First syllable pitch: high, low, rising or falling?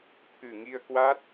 low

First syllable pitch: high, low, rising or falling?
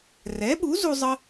rising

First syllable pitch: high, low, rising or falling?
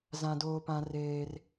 high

